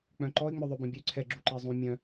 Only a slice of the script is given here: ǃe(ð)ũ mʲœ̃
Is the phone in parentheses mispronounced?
yes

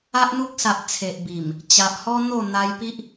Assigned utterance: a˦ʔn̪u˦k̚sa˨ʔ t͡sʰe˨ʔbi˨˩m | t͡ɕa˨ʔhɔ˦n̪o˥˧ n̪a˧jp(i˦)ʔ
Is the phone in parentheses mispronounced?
no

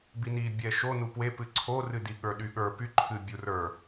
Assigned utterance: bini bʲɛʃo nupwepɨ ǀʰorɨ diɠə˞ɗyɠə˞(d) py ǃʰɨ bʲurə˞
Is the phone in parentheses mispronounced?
yes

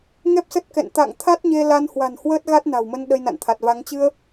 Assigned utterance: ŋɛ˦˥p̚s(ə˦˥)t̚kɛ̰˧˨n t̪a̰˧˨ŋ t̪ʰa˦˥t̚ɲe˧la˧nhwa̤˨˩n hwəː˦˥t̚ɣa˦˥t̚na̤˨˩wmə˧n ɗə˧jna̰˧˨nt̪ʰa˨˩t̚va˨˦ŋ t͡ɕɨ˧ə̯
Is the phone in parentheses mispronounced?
no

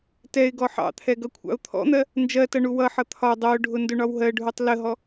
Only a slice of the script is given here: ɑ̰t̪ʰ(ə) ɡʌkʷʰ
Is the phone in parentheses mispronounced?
yes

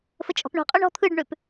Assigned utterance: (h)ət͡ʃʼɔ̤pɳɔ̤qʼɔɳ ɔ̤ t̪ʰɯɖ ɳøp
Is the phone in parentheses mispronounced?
yes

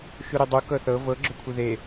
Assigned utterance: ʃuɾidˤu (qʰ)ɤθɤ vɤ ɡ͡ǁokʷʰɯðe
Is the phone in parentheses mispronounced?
yes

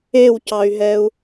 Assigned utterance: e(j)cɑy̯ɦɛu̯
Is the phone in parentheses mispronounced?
yes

